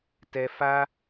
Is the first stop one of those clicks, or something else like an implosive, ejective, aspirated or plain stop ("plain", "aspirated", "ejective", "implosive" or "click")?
plain